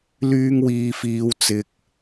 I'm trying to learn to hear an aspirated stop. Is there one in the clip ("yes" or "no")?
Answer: no